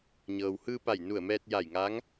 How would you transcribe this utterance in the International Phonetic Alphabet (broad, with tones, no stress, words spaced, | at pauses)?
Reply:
ɲɤː˩whɯː˧pa˧˩j nu˧˩ə̯mɛː˧t̚ ja˧˩jŋa˧˥ŋ